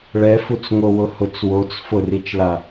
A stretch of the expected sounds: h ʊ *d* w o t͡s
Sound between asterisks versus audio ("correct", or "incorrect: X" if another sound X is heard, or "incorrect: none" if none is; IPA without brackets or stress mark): incorrect: t͡s